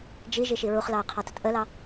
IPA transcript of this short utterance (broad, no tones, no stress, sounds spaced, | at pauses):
d͡ʒ i ʒ i ʃ i ɹ u χ l ɑ ə̯ qʰ ɑ t ʊ t ʔ ə l ɑ